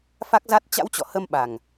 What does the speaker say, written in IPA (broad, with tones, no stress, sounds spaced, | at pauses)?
f a˦˥ k̚ z a˦˥ t̚ t͡ɕ a̰˧˥ w t͡ɕ ɔ̰˧˨ h ə˧ m ɓ a˨˩ ŋ